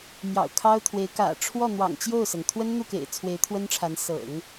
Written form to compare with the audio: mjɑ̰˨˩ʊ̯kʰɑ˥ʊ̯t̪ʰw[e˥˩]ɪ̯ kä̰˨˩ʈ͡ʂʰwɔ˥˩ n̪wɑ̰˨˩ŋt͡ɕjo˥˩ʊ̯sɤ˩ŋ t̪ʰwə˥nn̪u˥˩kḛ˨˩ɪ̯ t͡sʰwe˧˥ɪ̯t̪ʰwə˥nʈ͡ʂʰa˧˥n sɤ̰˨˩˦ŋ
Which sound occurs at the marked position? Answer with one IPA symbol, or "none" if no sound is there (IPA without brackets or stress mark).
e˧˥